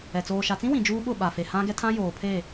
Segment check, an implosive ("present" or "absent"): present